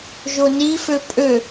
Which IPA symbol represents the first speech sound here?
ʒ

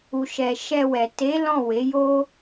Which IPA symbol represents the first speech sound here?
u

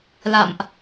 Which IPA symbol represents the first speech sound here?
l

